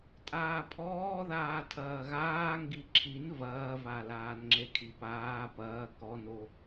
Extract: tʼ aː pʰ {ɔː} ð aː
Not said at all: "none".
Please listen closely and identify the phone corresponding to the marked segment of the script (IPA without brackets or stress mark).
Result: ɔː